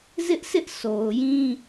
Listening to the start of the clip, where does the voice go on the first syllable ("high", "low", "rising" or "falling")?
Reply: high